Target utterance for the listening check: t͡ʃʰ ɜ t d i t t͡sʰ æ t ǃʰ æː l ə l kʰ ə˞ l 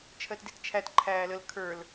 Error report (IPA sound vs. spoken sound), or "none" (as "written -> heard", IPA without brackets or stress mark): t͡sʰ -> t͡ʃʰ